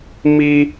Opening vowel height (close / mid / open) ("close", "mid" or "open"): close